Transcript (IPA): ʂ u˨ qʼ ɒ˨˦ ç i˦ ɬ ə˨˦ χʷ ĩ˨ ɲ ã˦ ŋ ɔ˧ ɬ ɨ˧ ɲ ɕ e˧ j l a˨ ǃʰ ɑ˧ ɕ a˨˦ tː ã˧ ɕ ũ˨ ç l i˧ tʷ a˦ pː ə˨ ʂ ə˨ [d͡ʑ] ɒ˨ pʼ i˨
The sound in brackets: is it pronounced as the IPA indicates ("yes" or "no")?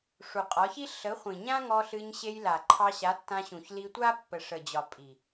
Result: yes